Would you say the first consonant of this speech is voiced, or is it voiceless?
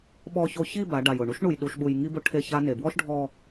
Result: voiced